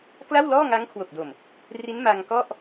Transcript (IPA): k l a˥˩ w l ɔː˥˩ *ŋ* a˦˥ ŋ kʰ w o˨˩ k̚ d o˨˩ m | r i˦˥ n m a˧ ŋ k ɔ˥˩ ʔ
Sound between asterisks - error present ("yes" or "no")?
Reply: no